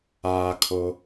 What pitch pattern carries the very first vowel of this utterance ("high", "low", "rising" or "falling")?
low